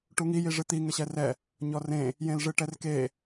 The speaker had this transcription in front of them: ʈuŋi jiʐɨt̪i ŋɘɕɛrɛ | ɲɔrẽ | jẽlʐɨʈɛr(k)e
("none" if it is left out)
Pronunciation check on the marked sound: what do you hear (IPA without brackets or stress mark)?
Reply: k